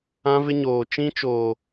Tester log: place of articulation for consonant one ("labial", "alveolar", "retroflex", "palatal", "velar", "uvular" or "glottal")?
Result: labial